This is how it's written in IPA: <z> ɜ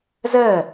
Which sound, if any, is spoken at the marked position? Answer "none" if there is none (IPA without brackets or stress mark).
z